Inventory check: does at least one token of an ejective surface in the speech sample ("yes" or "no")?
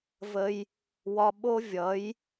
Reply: no